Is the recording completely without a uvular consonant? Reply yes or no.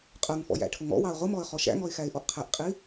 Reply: no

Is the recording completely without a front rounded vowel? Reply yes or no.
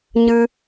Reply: yes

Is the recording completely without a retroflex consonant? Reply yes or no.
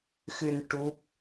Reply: no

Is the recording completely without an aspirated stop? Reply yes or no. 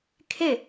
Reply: no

